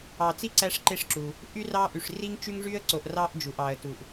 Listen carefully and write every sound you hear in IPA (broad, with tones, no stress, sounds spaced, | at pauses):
ɑ˨ t͡s i˥ ǀ æ˦ ʂ ǃ e˦ ʂ ǁ u˩ | ʔ y˦ r ɑ˥ ʔ y˨ ʂ r i˥ ŋ t͡ʃ y˥ ŋ ʐ y˥ ə̯ ǀ o˨ ʔ r ɑ˦ ʔ d͡ʒ u˩ ʔ ɑ˩ ə̯ t u˩ ʔ